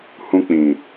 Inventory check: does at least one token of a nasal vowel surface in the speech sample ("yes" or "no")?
yes